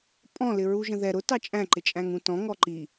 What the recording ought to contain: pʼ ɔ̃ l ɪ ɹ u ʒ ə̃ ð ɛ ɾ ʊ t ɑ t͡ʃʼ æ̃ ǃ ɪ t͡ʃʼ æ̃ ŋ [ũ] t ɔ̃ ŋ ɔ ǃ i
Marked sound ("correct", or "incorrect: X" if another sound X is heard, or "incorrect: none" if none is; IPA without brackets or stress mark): correct